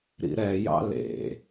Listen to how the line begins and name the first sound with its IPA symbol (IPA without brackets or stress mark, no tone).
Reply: ɾ